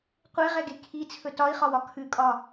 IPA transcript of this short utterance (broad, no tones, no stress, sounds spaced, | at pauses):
qʷ e ʁ ɛ ɡ e kʰ i t͡sʰ ɵ t ɒ i̯ χ ɒ w ɒ kʰ ʉ kʼ ɒ